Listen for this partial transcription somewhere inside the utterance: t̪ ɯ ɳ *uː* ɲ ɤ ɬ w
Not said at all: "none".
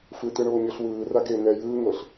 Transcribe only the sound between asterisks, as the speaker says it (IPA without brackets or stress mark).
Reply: oː